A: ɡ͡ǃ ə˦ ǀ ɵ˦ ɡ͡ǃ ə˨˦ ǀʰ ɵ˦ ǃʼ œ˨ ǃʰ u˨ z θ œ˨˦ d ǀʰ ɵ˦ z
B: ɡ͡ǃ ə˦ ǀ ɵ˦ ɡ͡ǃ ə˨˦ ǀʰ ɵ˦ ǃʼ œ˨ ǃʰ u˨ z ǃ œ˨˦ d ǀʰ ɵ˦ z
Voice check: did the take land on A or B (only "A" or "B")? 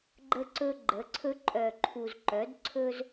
B